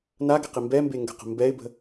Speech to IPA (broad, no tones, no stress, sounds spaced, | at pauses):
n a ɡ ɪ q i m b ɛ m b e ŋ ɡ ə̤ q ə̤ m b ɛ ɪ̯ b ə̤